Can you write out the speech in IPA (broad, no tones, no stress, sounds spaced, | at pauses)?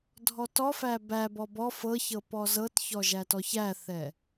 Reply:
dʱ ɔ t ɔ f æ b æ b ɔ b ɔ f ɤ ç ɤ p ɔ z ɤ t ç ɔ ʒ æ t ɔ ç æ θ ɛ